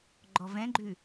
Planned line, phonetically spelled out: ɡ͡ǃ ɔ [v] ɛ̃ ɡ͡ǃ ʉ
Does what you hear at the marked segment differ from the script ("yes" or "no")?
no